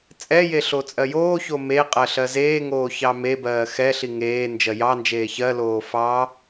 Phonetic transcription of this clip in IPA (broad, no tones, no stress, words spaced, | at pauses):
t͡sʼɛje ɬot͡sʼɜjoːço me qʼɜɬɜzeːŋoː çɑmebɜː xɛɬi ŋeː nd͡ʒɜjɑnd͡ʒeː çɜloː fɑ